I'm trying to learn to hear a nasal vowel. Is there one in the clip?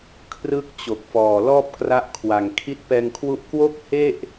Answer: no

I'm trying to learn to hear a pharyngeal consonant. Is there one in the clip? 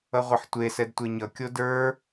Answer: yes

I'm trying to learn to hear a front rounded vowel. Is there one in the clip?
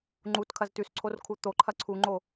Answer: no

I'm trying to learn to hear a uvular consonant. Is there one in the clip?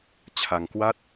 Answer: no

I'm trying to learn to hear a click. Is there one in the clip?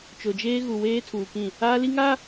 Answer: no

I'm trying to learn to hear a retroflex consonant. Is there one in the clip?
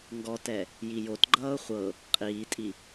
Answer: no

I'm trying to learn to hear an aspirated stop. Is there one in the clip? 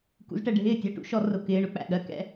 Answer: no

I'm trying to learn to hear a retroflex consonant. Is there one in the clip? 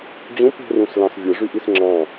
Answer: yes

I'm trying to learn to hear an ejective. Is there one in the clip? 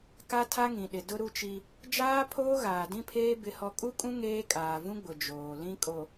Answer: yes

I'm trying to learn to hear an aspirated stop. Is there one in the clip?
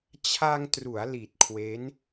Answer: yes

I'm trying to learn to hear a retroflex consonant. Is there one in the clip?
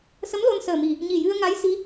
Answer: no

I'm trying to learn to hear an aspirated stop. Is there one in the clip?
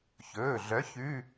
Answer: no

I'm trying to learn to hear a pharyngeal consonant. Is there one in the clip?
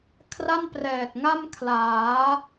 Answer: no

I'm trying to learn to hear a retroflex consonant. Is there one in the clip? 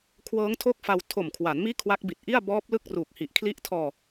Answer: no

